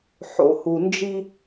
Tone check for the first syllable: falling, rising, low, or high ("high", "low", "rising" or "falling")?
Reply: low